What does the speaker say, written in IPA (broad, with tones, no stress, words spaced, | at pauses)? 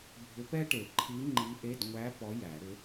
bʱʏ˧˥ pɛ˥ʈe˨˩˦ǃʰi˧˥ ŋ͡ǃi˧˥ʔe˧˥˧d ŋʷæ˧˥ pɔ˧˥jæ˨˩˦ɾʏ˧˥